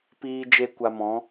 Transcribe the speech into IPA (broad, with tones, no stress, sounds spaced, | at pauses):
p iː˦ d͡ʒ e˦ kʷ a˧ m ɔ̃˨˦